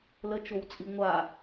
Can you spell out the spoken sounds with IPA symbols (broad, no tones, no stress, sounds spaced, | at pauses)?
l ə t͡ʃ o w t͡sʼ i ŋʷ a